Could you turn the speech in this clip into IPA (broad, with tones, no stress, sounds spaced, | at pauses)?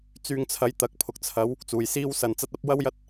t͡s yː˧ ŋ t͡sʰ ɐ˨˥ j t̪ ɐ˨˥ k̚ pʰ ʊ˨ k̚ t͡sʰ ɐ˨˥ w | t͡s uː˨ j s iː˥ w s ɐ˧ n t͡s ɐ˥ t̚ ɐ˥ p̚ w ɐ˥ w j ɐ˥ t̚